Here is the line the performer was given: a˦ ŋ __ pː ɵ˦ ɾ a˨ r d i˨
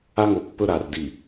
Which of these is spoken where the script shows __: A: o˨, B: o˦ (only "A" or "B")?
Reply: A